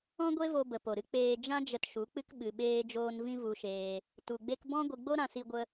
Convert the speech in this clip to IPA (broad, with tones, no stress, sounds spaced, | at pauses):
ɔ̃˦ ɡʷ e˦ v o˧ b ə˨ p o˨ ɾ ɨ˦ k͡p eː˧ d͡ʒ ã˦ d͡ʒ ə˧ t ʃ u˨˦ k͡p ɨ˦ k ɓ ɨ˧ ɓ eː˦ d͡ʒ oː˦ n v ĩ˦ v u˧ ʃ eː˧ | t u˧ ɡ͡b e˦ k b ɔ̃˦ ɡʷ ɨ˧ ɡ͡b o˦ ɾ ã˧ s i˧ ɡʷ ə˧